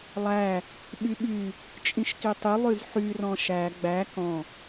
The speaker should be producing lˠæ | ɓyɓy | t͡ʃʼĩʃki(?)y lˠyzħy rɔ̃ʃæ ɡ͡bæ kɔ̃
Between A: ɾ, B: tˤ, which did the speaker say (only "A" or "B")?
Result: B